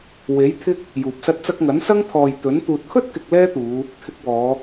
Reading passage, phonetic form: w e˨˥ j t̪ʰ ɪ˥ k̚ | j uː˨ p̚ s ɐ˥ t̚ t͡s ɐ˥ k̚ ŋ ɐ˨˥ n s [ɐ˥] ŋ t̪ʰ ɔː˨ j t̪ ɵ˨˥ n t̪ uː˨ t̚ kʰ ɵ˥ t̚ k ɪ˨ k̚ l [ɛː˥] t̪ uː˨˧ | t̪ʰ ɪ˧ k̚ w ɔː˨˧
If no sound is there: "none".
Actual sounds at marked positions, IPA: ɐ˥, ɛː˥

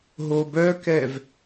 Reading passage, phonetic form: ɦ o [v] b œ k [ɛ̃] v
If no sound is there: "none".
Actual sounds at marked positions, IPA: none, ɛ

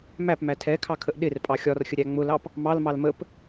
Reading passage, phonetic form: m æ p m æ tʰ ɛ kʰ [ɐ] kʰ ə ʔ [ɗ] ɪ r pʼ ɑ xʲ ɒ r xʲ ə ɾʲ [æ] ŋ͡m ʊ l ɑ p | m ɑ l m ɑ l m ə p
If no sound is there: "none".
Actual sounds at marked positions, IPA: ɑ, ɗ, æ

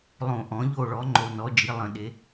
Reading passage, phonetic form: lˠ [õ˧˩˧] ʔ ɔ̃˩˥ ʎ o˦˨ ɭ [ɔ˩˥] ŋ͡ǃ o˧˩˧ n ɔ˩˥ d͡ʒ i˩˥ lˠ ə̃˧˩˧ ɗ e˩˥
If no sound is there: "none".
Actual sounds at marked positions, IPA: õ˧˩˧, ɔ˩˥

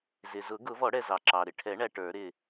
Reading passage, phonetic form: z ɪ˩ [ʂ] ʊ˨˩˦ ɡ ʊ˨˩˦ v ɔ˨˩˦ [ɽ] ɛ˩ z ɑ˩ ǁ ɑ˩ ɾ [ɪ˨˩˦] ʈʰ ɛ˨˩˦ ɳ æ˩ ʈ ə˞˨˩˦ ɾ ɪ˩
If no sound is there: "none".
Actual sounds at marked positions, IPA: z, ɽ, ɪ˩

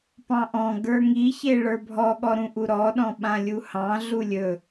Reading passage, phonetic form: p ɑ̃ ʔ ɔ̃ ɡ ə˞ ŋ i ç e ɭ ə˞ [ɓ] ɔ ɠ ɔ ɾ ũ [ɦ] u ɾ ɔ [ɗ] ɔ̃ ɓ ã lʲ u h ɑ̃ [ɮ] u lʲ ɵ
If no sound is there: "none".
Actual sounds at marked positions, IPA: bʱ, ʔ, ɗ, ɮ

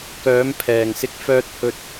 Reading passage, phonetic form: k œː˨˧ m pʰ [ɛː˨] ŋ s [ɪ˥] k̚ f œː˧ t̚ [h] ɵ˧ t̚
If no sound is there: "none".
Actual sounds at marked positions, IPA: ɛː˨, ɪ˧, h

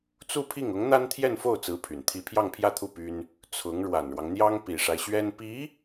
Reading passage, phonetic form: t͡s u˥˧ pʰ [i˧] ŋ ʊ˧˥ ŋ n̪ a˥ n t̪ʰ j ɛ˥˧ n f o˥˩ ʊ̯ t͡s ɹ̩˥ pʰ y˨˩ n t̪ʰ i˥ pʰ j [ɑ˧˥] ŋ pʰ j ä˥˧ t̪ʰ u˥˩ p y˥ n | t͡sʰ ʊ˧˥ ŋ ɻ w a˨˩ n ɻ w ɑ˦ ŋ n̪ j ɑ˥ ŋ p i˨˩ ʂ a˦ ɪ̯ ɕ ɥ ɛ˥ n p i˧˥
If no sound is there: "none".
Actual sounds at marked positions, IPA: i˥˩, ɑ˥˧

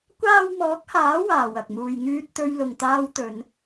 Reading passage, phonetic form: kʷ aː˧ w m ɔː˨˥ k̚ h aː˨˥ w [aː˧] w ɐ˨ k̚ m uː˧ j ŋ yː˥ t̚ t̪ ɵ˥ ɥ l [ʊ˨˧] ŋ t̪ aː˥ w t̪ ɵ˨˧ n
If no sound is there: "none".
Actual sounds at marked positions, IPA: aː˨, ʊ˧

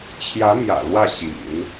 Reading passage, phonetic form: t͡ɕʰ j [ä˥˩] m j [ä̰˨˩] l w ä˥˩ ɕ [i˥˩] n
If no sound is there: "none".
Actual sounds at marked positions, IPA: ä˧˥, ä̰˨˩, ḭ˨˩˦

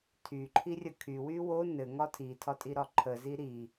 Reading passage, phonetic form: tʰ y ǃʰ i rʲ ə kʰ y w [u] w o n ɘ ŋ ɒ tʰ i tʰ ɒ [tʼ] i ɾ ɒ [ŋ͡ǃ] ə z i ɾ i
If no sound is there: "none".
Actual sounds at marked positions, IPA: y, tʼ, ǃʰ

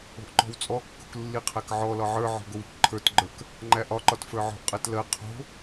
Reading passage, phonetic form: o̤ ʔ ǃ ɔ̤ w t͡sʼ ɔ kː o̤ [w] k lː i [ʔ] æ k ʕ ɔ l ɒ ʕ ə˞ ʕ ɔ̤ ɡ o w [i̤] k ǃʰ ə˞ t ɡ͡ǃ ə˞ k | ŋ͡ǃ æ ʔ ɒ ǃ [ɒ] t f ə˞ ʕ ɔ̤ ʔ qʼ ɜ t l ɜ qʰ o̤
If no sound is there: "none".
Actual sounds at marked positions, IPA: none, qʰ, i̤, ɒ

